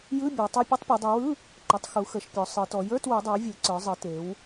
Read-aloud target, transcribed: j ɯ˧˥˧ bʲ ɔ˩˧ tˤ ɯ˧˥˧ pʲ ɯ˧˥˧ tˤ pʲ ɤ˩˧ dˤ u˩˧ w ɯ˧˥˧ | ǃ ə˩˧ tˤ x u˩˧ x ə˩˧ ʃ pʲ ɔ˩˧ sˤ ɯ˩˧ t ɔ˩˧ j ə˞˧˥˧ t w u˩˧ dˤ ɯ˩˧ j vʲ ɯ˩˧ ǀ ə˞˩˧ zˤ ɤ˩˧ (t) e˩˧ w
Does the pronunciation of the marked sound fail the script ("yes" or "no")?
no